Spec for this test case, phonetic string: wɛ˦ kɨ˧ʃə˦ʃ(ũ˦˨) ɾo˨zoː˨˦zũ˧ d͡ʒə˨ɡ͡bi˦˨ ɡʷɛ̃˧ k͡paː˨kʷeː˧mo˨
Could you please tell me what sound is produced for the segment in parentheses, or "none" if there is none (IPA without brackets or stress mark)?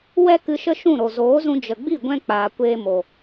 ũ˦˨